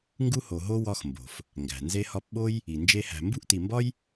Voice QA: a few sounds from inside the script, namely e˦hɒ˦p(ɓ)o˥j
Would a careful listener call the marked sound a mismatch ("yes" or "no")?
no